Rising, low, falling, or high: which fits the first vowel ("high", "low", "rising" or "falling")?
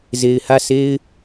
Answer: low